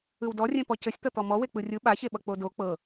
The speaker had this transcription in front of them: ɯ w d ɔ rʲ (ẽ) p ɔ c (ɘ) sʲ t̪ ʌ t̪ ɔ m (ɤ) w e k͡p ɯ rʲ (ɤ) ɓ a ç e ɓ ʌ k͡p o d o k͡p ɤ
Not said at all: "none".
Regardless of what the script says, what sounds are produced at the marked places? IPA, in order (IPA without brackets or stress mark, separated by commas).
ẽ, ɘ, ɔ, ɯ